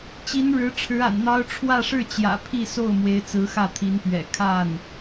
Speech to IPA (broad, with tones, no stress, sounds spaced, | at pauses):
t͡ɕ i˧˥ n ɻ ɻ̩˧˥ ʈ͡ʂʰ ɻ̩˧˥ a̰˨˩ n n̪ ɑ˥ ʊ̯ ʈ͡ʂʰ w ä˥˧ ʂ ɻ̩˥˩ t͡ɕ j ä̰˨˩ pʰ i˥˧ s o˥˩ ʊ̯ m w e˧˥ ɪ̯ t͡s ɹ̩˧˥ x ä˥˩ t̪ʰ i˧˥ n p ɥ ɛ̰˨˩ kʰ a˥˩ n